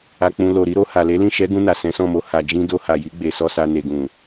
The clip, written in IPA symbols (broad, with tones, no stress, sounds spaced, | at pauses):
a˧ k͡p ũ˧ l o˨ ɾ i˨˦ ɾ o˧ h a˨ l e˨˦ l ĩ˦˨ ʃ ɛ˨˦ ɡ ũ˧ n a˨ s ɛ̃˨˦ s ɔ̃˦˨ m o˧ h a˧ d͡ʒ ĩ˦ d o˧ h a˨ j i˨˦ ɡ͡b e˧ s ɔ˦ s a˧ n e˨ ɡ ũ˨